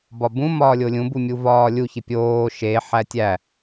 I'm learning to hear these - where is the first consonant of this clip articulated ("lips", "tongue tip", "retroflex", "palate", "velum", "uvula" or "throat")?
lips